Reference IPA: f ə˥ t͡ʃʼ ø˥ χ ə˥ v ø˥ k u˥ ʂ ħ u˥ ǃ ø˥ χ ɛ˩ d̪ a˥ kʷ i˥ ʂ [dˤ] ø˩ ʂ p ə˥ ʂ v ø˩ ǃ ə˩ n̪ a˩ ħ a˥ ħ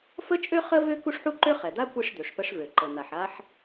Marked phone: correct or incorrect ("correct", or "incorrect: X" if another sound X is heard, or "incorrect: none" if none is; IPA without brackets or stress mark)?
incorrect: d̪